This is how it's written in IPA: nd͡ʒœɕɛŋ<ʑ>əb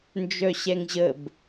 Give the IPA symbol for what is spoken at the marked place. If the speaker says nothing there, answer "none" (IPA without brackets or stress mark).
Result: ʑ